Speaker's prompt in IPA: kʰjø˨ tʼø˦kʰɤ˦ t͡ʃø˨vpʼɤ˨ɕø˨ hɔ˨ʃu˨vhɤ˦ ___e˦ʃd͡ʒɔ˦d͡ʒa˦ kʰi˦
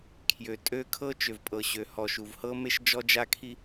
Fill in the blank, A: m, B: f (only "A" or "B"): A